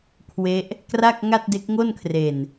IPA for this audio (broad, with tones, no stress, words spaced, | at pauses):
kʰwe˦˥ʔ | kra˥˩k̚ŋa˥˩t̚de˦˥k̚ ŋo˥˩nkʰre˨˩n